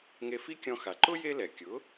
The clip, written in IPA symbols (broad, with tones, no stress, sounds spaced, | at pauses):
ŋ e˧ f i˥ kʲ ɔ̃˧ x a˩ ǃ ʊ˥ j e˥ l ɛ˩ kʲ ʊ˩˥